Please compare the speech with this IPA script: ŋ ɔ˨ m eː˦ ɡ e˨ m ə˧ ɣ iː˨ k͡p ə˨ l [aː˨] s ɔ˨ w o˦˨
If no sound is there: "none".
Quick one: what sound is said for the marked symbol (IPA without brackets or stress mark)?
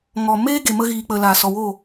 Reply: aː˨